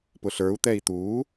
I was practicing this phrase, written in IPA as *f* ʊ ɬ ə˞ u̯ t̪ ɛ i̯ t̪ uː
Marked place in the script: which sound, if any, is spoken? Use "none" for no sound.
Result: p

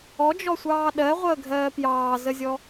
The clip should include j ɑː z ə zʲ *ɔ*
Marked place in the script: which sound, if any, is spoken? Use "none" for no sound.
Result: ɔ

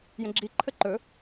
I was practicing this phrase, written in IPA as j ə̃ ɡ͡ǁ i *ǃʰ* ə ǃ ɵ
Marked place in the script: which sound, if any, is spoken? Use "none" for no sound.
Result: ǃʰ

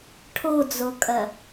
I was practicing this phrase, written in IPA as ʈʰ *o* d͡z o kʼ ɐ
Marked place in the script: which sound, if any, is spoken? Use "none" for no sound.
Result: o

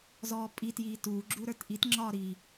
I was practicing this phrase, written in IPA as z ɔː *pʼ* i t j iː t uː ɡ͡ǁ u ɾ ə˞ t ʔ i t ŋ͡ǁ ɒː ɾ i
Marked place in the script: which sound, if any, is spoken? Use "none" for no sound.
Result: pʼ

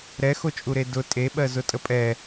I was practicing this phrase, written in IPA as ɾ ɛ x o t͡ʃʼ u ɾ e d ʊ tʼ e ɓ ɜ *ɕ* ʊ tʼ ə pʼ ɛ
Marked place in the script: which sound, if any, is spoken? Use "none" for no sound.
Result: z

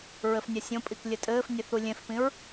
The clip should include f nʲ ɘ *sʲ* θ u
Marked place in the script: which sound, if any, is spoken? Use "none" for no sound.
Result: none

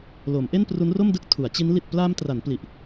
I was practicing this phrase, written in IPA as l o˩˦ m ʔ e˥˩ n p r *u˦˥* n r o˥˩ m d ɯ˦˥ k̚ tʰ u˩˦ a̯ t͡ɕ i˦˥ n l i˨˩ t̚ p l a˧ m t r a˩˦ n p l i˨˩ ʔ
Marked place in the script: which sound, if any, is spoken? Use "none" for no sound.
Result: u˦˥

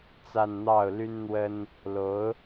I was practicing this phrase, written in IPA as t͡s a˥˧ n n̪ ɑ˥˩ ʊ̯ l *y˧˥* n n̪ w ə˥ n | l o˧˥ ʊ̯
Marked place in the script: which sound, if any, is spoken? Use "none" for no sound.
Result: y˥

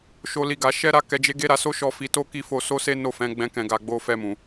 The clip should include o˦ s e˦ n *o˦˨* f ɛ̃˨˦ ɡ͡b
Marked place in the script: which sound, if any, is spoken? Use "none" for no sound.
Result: o˦˨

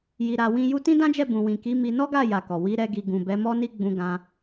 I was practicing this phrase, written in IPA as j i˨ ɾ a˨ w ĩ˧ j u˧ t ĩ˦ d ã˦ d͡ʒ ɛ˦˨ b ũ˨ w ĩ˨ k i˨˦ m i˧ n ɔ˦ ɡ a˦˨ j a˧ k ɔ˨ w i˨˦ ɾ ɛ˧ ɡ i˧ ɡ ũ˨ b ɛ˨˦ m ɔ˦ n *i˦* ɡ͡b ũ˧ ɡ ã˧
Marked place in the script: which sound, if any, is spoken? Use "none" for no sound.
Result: i˦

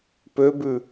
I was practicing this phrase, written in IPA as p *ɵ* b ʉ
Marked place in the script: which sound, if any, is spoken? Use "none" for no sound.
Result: ø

